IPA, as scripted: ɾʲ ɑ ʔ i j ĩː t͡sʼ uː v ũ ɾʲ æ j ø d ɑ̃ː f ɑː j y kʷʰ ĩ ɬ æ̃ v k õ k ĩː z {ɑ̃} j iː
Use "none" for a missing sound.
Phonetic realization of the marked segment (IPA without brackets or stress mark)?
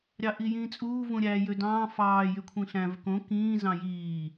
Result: ɑ̃